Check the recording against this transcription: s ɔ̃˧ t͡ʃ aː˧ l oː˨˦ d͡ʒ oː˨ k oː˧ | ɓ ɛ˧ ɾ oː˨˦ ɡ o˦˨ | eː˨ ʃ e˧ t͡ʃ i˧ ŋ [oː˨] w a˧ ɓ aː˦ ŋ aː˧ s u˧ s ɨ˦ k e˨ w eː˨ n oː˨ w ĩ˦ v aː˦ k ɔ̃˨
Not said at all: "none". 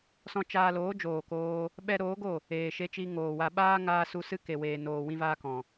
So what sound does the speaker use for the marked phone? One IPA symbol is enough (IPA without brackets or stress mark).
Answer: oː˨